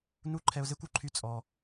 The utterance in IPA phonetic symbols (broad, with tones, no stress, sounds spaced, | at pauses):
n u˥ ǃʰ ɛ˧ ʊ̯ z e˥ kʷ u˩ ǃʰ y˧ t͡sʼ ɔ˩